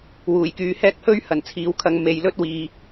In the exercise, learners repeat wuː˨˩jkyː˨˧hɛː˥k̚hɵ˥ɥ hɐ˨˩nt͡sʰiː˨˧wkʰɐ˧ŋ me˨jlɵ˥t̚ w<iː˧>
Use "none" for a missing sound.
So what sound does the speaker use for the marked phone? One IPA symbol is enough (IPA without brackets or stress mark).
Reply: iː˧